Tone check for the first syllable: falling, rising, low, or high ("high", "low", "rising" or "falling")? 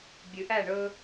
low